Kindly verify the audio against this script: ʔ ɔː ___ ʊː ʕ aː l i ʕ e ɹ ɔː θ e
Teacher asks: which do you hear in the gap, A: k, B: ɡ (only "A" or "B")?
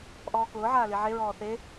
A